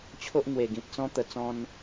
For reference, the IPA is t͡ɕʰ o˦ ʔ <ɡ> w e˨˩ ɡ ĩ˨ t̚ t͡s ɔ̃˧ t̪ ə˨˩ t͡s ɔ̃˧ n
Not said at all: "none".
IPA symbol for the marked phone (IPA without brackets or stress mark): ŋ